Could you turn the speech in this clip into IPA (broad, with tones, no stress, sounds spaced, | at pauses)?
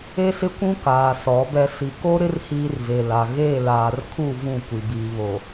e˦ s ɪ˦ kʷ ũ˦ k aː˨ s ɔ˨˦ b ɛ˦ s i˨ k o˦ ɾ ɪ˦ r h iː˦ r v e˨ l a˨ ɣ eː˦˨ l aː˨ r kʰ u˦˨ v ũ˦˨ kʷ i˨ b iː˨ β o˨